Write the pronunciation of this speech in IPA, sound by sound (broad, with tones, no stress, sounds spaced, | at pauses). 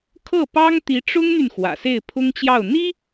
kʰ ɤ˥˩ p ɑ˥ ŋ t̪ i˧˥ ʈ͡ʂ ʊ˥ ŋ n̪ y˨ n x w ä̰˨˩ s e˥˩ ɪ̯ pʰ ʊ˥ ŋ t͡ɕ j ɑ˥˩ ʊ̯ n̪ i˥